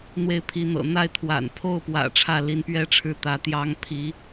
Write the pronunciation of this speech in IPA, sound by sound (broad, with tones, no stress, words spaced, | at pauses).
n̪we˥˩ɪ̯pʰi˧˥n̪ɤ̰˨˩ n̪a˥˩ɪ̯ t̪ʰwa̰˨˩npʰo˥˩ʊ̯pwä̰˨˩ ʈ͡ʂʰä˥˩li˧˥npɥɛ˥ʈ͡ʂʰɻ̩˧˥ t̪ä˧˥t̪jɑ˥ŋ pʰi˧˥